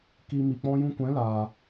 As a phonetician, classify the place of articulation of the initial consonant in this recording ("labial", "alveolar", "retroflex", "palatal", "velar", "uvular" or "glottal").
velar